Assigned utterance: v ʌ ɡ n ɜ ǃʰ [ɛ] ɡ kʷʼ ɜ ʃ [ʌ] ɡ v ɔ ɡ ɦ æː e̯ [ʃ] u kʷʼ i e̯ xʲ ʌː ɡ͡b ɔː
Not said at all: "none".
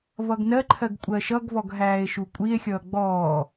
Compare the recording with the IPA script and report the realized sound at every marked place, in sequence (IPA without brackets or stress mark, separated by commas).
ɜ, ʌ, ʃ